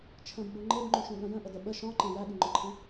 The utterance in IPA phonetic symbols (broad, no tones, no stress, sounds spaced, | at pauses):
t͡ʃʰ ə̃ b ɡ͡b u ŋ͡ǃ e b ŋ͡ǃ ũ ʃ ũ ɠ ə̃ j ə̃ ʔ ə d ə ɓ ə ʃ ɔ̃ ǃ ɛ̃ j æ ɠ y ŋ͡ǃ ɔ ǃʰ ɛ̃